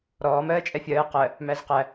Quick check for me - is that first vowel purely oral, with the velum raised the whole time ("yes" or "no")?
yes